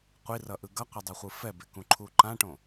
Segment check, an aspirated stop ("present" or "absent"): present